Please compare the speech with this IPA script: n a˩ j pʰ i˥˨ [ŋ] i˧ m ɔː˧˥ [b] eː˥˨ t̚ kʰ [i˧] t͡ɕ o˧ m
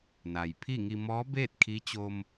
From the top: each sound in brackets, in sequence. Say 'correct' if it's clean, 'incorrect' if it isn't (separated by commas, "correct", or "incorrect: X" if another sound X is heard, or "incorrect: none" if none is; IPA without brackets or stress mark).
correct, correct, incorrect: i˧˥